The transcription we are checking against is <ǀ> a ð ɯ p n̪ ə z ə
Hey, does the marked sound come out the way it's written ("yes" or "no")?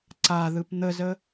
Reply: yes